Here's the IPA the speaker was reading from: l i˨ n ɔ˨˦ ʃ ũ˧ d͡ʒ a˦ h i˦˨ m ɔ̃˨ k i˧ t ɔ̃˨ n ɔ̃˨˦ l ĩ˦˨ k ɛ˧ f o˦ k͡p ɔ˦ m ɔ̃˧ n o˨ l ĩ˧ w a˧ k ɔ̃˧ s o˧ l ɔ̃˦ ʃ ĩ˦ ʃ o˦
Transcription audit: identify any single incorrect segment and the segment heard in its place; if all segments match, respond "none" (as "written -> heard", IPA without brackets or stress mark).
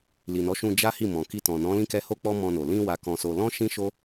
f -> h